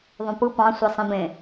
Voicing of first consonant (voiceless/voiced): voiced